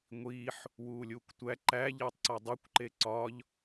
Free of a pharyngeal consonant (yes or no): no